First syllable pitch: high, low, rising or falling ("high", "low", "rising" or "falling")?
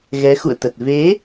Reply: rising